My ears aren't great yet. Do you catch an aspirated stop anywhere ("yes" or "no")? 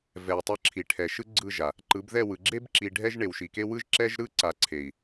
yes